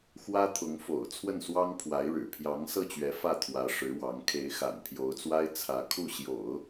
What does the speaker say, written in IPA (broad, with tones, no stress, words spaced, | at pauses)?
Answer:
xwä˥t̪ʰʊ˧˥ŋ fo̰˨˩ʊ̯ t͡sʰwə˥˩nswɑ˥ŋpʰwa˧˥ɪ̯ ɻɻ̩˨˩pʰjɑ˧˥ŋsɤ˥˩t͡ɕɥɛ˧˥ fä˥˩t̪ʰwä˧˥ ʂɻ̩˧˥wɑ˧˥ŋ kʰe˧˥ɪ̯xa̰˨˩npʰjo˧˥ʊ̯t͡swa˥ɪ̯ t͡sʰä˧˥kʰu˥˩ɕjo̰˨˩˦ʊ̯